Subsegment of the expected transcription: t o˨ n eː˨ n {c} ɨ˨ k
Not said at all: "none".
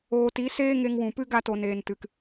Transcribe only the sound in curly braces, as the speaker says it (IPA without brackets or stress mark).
t